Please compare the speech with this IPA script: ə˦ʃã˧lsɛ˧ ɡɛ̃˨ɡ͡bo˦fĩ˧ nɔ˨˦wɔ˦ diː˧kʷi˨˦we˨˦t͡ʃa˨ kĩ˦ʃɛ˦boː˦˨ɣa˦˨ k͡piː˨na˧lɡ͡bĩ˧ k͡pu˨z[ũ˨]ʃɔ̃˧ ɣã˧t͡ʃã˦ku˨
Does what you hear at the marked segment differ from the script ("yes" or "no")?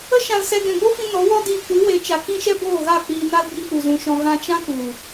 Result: no